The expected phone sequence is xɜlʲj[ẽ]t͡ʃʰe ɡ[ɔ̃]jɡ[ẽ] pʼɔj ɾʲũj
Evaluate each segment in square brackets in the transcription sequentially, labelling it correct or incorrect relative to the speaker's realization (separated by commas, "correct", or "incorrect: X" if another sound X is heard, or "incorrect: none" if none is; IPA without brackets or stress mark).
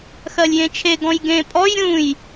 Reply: correct, correct, correct